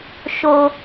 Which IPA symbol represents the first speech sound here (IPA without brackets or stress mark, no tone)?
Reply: ʃ